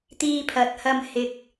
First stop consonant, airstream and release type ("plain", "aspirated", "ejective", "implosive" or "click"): plain